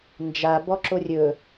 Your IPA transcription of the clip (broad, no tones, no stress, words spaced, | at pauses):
nd͡ʒa bɔǁorʲɵ